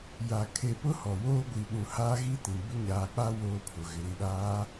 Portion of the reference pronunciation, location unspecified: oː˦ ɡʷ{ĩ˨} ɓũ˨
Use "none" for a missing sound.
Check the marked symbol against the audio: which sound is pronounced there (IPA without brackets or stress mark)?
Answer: i˨